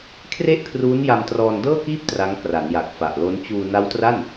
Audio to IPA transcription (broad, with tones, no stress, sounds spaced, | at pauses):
kʰ r e˥˩ ʔ kʰ r uː˦˥ n j a˧ m t r ɔː˧ n d ɤː˥˩ k iː˥˩ p̚ t r a˦˥ ŋ k r a˩˦ n j a˨˩ k̚ f a˨˩ ʔ l o˦˥ n t͡ɕ uː˧ n a˦˥ w t r a˥˩ n